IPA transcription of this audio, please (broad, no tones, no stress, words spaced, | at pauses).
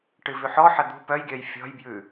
ʈɨvʉħɔħɐ d̪ṳ pœjɡʲœj fʲɔ̤jbjʉ